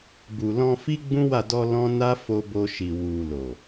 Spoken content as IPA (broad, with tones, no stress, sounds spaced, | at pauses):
b u˨ l ɔ̃˧ f i˦ ɡ͡b ũ˦ w a˦˨ d ɔ˧ l ɔ̃˦ n a˦ f o˧ b o˧ ʃ i˨ w u˨ l o˨